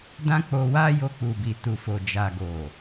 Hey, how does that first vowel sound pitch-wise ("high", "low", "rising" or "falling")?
high